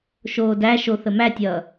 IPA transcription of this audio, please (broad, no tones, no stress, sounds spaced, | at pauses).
ʃ oː d æ ʃ o θ ə m æ tʲ ʌː